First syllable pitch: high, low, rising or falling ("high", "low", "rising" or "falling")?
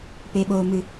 low